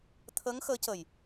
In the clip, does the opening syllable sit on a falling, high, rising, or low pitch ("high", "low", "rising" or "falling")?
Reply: rising